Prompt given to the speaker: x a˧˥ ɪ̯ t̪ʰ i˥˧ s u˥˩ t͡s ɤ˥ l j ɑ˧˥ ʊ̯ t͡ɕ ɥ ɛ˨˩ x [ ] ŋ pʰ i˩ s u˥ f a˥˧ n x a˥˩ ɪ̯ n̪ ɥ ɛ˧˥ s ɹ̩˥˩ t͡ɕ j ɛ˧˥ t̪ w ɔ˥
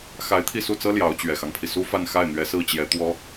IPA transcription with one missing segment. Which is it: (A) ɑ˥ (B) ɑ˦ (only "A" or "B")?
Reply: B